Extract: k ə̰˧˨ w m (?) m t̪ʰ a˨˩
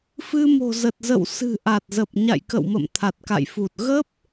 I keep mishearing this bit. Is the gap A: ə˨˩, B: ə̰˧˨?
B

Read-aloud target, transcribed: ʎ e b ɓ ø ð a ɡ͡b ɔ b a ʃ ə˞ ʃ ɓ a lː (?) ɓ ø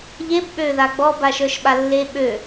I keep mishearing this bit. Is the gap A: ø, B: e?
B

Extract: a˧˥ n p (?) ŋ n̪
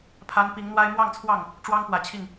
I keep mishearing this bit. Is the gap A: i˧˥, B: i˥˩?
A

